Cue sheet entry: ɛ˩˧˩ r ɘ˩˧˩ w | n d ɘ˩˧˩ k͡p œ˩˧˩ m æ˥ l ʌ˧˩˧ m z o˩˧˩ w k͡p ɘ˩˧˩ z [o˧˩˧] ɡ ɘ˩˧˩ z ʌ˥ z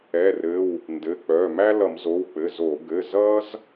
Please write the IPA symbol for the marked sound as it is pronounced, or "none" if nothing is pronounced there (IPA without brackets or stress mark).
o˧˩˧